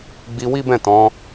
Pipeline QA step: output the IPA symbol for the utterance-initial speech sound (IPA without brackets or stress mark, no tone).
ɡ͡b